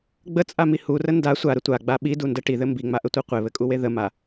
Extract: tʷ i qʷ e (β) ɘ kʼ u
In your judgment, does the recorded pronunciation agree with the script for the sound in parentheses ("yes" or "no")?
yes